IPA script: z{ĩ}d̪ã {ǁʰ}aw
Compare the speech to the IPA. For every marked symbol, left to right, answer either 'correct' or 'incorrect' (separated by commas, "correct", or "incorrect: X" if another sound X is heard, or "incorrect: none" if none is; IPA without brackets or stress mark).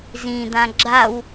correct, incorrect: ɡ͡ǁ